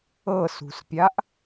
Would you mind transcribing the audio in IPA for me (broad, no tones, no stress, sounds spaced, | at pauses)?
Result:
ɤ s ṳ s pʲ a ʔ